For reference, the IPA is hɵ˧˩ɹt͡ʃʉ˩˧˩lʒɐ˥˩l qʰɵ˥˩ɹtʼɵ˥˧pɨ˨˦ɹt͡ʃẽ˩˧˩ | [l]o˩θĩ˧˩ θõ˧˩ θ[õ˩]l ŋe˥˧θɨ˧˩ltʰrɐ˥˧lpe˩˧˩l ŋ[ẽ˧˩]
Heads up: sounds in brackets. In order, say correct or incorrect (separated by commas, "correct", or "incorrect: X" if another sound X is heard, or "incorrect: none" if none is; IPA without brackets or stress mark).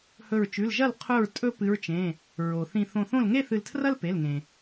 incorrect: ɹ, incorrect: õ˥˩, incorrect: ẽ˩